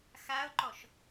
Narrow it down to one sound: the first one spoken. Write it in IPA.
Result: x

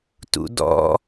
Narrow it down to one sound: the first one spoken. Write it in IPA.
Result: t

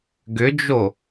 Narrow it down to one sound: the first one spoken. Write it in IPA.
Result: ɡ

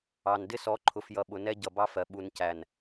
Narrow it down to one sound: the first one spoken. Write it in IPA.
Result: ɑ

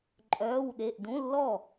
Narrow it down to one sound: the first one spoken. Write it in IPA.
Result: ǃʼ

